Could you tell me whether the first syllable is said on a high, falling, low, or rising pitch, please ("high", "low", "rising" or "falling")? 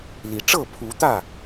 rising